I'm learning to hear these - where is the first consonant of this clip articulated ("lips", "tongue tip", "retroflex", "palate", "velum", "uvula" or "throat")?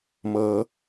lips